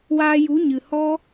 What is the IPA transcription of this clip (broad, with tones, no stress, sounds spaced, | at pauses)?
w aː˧ j u˨˦ ɲ ɨ˨ h ɔ˦